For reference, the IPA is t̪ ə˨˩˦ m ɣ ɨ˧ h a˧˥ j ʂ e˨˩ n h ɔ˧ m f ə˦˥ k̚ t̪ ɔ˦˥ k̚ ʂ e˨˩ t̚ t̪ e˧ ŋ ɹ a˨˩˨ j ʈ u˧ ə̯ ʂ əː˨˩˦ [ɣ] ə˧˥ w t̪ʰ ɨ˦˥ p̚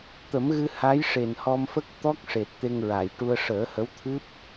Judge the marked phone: incorrect: h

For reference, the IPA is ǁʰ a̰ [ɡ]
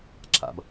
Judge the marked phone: incorrect: b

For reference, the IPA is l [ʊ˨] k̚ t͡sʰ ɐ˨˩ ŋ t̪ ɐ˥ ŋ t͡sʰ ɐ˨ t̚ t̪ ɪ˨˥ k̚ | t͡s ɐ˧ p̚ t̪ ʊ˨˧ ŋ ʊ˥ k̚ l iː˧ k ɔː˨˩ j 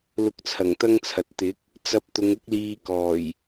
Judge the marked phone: incorrect: ʊ˧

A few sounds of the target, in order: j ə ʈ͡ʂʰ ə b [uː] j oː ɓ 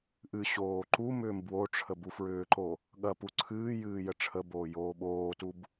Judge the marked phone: incorrect: oː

